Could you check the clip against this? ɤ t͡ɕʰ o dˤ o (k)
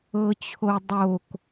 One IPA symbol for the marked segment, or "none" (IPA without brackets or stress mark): k